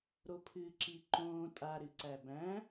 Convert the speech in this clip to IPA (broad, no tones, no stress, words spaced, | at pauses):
ɾopʰɨːǁiǃõː tʼa ɾɨǀæbæ̃